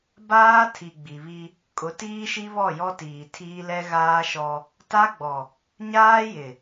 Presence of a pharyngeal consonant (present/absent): absent